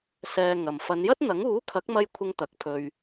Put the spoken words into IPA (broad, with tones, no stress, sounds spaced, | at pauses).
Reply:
s ɛː˨ ŋ ɐ˨ m f ɐ˨˧ n j ɐ˥ t̚ n̪ ɐ˨˥ ŋ uː˨˥ kʰ ɐ˨˥ k̚ m ɐ˧ j kʷʰ ɪ˧ ŋ t̪ ɐ˨ k̚ pʰ ɵ˧ ɥ